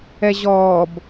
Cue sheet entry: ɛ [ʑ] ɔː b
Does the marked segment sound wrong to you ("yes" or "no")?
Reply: no